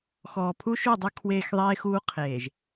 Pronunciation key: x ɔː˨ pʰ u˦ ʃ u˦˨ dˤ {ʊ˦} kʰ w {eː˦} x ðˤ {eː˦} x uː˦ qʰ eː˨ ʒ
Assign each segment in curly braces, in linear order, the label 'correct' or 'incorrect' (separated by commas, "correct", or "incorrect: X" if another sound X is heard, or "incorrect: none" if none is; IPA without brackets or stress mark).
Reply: incorrect: u˦, correct, correct